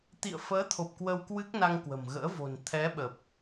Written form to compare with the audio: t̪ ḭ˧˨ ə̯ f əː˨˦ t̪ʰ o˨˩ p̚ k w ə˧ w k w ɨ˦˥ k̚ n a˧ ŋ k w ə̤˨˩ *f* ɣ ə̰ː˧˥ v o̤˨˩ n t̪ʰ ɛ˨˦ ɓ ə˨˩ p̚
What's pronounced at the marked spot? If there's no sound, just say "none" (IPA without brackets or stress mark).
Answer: m